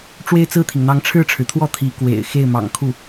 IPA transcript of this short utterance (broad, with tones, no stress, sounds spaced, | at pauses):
ʈ͡ʂ w e˥˧ ɪ̯ t͡s ɹ̩˥˩ t̪ʰ i˩ ŋ n̪ ɑ˧˥ ŋ ʈ͡ʂʰ ɻ̩˥˩ ʈ͡ʂʰ ɻ̩˩ t̪ʰ w ɔ˥˩ t̪ʰ i˧˥ k w ḛ˨˩ ɪ̯ x e˥˩ ɪ̯ m ɑ̰˨˩ ŋ kʰ u˥˩